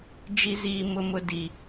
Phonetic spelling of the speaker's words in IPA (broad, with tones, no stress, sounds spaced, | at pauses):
d͡ʒ i˦ z iː˦ m ʊ˦ m ʊ˦ d i˦